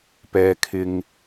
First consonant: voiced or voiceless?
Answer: voiceless